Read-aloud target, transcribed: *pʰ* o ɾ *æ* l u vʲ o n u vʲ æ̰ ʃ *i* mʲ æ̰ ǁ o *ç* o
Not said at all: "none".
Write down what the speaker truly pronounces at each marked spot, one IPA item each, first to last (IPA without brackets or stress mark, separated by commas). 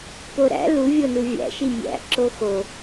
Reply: p, æ̰, i, x